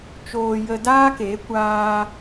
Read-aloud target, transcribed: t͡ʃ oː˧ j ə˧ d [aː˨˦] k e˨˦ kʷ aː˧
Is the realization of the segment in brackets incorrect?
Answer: yes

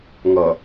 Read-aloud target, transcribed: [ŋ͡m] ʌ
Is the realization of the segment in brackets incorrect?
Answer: yes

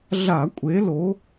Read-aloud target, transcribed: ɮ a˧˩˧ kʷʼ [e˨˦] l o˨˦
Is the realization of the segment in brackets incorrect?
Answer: no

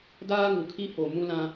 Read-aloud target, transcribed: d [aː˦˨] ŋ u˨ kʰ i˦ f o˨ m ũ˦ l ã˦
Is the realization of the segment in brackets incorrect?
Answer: yes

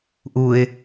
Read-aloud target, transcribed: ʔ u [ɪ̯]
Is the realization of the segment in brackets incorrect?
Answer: no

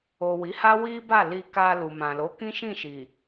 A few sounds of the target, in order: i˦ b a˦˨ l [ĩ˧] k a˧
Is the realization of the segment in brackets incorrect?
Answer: yes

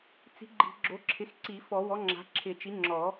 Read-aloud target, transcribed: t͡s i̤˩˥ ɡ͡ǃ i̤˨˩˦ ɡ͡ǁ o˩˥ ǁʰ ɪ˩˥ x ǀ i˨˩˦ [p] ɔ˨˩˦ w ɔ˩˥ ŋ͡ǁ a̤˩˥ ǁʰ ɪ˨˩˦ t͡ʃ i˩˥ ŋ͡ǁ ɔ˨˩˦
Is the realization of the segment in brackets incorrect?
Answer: yes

